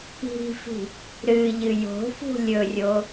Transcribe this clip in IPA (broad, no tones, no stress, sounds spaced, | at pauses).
i̤ f i̤ | ɾ ɨ ʎ ɨ j o̤ f ṳ lʲ ɵ rʲ o